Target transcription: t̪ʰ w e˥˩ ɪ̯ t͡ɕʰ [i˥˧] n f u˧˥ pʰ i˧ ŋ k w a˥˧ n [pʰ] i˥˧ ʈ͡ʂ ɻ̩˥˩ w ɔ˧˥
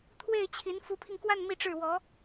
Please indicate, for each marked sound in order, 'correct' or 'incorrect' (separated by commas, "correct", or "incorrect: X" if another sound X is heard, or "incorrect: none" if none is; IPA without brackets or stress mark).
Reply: incorrect: i˧˥, incorrect: m